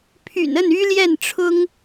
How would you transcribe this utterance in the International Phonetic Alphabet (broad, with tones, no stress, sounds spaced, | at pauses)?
pʰ y̰˨˩ n ə˥˩ n y˥ l j ɛ˥˩ n ʈ͡ʂʰ ʊ˥ ŋ